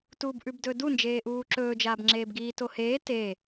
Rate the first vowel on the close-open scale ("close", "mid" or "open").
close